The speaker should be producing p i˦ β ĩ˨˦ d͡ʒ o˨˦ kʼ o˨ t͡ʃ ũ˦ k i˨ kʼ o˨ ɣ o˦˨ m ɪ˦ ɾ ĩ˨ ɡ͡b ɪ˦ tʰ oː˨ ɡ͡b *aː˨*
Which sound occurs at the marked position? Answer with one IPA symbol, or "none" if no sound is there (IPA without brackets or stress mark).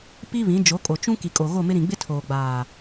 aː˨